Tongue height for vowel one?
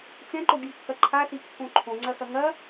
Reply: mid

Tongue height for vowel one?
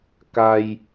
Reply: low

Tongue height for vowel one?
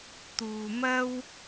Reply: high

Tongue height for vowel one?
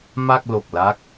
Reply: low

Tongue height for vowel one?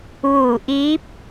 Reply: high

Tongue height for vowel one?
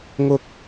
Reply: high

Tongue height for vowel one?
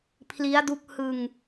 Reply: high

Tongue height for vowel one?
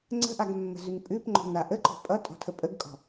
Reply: mid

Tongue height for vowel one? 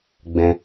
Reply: mid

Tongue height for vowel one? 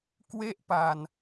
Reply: mid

